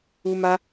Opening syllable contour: high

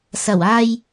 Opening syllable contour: low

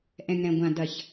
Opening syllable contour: low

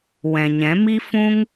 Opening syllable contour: low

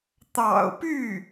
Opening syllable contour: low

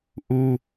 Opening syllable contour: high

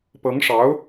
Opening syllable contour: rising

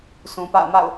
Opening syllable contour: low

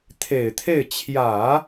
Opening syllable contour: low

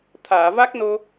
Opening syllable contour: low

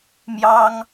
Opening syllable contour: high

